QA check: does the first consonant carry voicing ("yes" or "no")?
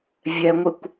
yes